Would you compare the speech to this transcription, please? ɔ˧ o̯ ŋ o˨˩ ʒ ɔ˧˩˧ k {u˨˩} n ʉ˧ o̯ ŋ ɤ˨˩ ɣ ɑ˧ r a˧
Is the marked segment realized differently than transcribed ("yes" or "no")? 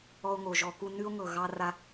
yes